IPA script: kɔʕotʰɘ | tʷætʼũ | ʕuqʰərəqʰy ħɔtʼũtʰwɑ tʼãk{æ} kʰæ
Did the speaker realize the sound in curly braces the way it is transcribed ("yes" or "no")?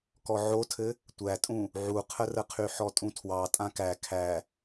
yes